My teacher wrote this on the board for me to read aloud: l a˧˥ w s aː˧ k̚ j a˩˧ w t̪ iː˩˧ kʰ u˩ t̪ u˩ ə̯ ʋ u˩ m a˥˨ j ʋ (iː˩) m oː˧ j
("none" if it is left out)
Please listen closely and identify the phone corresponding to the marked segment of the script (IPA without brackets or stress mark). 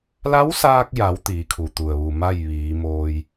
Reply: iː˩˧